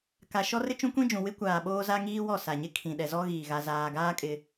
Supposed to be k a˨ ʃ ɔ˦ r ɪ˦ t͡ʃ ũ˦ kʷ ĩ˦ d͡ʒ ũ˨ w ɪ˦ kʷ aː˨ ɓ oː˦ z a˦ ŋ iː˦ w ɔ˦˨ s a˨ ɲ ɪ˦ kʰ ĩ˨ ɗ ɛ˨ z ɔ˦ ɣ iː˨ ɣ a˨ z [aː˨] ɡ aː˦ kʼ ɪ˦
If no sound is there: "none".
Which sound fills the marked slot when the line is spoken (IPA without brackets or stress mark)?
aː˨